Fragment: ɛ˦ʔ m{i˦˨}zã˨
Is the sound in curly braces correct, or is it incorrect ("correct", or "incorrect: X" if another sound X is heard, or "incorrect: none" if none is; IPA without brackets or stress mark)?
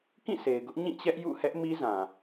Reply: incorrect: i˦